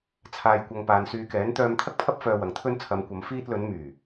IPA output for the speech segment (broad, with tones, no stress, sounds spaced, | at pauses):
t͡sʰ aː˨ j kʷ ɐ˨ ŋ p aː˨ n s yː˨˧ k ɛː˨˥ n t̪ œː˧ m t̪ʰ ɐ˥ k̚ pʰ ɐ˥ p̚ f œː˧ w ɐ˨ ŋ t̪ʰ ɵ˥ n t͡sʰ ɐ˨˧ m kʷ ɐ˨˧ m f iː˧ t̚ l ɵ˨˧ n m yː˨˩